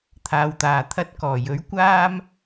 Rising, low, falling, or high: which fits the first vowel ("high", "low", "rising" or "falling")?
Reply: low